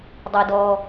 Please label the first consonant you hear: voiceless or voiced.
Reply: voiced